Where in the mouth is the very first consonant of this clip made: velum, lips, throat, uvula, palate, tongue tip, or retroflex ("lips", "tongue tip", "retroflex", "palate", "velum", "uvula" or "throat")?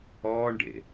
retroflex